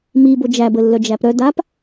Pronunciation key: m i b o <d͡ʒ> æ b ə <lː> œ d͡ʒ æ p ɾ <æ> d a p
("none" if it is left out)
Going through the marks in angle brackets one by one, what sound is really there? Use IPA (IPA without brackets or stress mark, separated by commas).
d͡ʒ, lː, œ